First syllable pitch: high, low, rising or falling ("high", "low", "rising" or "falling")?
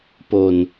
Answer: low